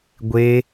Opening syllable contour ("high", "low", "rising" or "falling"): high